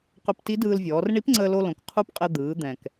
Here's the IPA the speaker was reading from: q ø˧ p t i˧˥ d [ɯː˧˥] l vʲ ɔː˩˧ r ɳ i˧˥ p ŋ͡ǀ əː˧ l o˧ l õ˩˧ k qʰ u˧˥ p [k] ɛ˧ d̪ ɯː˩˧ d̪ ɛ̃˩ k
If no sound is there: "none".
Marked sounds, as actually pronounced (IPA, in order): ɯː˧, qʼ

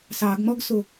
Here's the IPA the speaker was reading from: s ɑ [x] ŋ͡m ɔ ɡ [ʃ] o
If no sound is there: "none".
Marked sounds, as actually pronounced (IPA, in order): ɡ, s

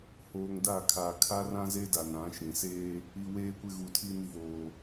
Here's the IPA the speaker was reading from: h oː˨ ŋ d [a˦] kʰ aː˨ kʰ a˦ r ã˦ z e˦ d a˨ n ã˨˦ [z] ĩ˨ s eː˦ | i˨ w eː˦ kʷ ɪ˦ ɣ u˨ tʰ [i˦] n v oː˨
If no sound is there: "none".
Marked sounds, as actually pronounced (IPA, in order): a˦˨, ʃ, i˦

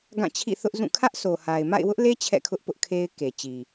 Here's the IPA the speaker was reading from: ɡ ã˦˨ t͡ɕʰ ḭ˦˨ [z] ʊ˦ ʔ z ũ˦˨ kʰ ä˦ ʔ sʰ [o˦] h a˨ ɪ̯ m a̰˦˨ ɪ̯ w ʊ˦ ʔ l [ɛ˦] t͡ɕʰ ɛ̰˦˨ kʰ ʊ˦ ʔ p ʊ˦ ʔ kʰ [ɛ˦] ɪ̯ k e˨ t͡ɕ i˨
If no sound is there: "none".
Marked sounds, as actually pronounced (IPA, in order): θ, o˨, e˦, e˦

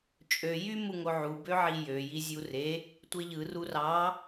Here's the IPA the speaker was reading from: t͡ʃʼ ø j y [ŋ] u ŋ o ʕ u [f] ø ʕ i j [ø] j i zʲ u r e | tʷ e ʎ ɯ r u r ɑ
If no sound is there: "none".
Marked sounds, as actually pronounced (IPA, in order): m, b, ø

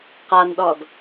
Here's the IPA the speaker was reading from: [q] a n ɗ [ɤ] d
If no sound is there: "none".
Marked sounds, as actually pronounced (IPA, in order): q, ɔ

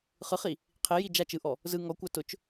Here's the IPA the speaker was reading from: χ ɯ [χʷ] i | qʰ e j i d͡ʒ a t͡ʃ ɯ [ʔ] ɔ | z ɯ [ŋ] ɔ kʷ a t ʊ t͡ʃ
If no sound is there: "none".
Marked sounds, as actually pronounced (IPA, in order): χ, ʔ, ŋ

